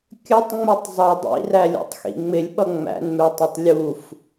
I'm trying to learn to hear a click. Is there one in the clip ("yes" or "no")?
no